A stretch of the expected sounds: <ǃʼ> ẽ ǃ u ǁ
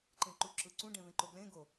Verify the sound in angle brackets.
incorrect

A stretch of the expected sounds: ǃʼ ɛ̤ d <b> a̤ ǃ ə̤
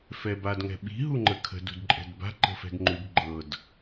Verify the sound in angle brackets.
correct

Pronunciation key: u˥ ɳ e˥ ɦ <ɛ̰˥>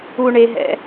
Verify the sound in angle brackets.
correct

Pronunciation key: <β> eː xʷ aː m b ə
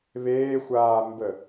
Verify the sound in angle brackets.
correct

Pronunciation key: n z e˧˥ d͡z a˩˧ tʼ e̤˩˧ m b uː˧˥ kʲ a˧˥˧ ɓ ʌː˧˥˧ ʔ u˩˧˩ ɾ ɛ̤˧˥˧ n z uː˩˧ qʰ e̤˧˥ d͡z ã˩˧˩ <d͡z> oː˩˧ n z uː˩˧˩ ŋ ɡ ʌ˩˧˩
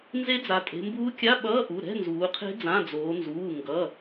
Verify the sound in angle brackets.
correct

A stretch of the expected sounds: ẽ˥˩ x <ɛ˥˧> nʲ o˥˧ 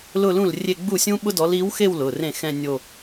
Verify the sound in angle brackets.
incorrect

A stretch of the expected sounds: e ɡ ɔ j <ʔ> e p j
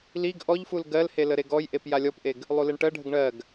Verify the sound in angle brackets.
correct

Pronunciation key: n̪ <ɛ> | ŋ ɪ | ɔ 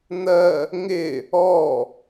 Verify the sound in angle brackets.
incorrect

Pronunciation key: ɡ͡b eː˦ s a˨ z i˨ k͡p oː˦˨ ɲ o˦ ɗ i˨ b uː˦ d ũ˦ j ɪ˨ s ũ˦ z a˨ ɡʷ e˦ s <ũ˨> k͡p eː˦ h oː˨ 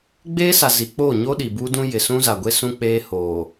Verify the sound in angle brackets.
incorrect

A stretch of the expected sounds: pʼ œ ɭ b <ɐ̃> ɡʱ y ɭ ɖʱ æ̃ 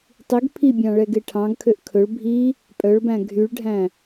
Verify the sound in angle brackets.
incorrect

